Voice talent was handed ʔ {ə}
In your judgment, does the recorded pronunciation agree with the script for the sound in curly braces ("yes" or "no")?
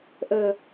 yes